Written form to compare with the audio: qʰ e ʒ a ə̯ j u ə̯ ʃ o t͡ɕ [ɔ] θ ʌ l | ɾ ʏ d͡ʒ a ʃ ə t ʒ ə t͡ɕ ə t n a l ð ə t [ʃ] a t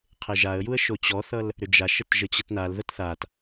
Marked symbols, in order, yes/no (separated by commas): yes, no